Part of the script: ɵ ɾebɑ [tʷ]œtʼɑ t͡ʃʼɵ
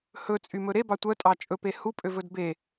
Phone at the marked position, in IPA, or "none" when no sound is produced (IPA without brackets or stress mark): tʷ